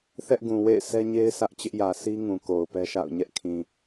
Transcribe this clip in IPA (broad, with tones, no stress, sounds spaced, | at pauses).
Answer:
θ ɛ˦ ʔ ɡ ũ˨ w ḛ˦˨ ɪ̯ s ɛ˦ ɲ e˦ ɪ̯ sʰ ä˦ ʔ t͡ɕ ɪ˦ ʔ j ä˨ s i˦ ŋ ũ˨ k o˨ ʊ̯ p ɛ˦ ʃ a̰˦˨ ʊ̯ ɲ ɛ˦ ʔ kʰ ĩ˨